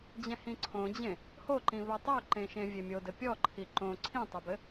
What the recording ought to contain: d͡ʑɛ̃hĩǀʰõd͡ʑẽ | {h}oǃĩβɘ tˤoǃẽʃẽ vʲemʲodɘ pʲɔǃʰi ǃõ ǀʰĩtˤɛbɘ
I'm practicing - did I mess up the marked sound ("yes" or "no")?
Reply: no